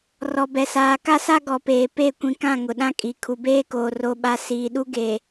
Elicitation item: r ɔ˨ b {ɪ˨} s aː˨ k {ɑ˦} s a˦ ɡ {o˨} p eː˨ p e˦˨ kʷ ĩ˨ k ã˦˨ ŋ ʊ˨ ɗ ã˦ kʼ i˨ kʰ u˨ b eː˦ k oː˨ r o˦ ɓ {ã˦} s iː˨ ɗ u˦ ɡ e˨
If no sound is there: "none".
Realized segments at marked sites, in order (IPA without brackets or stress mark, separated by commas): ɛ˨, a˦, ɔ˨, a˦